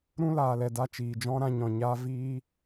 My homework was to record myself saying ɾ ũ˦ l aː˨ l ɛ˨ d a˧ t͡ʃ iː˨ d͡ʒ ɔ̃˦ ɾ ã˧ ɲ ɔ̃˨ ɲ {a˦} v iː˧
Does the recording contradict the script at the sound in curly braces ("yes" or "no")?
yes